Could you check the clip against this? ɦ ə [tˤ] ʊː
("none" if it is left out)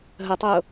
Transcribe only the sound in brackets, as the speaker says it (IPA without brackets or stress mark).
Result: tˤ